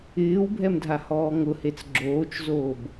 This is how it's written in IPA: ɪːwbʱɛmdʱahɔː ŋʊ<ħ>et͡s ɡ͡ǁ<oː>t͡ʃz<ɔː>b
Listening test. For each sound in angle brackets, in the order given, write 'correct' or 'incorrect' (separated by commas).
incorrect, correct, incorrect